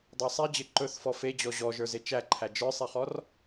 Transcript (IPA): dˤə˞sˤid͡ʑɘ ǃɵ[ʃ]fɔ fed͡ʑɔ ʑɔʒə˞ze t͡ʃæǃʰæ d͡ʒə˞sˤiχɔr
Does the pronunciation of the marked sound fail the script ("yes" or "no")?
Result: yes